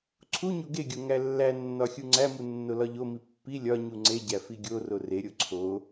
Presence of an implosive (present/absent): absent